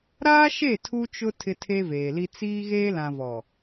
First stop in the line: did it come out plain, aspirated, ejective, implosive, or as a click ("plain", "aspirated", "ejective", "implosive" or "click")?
aspirated